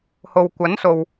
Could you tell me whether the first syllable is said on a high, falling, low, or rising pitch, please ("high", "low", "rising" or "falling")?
low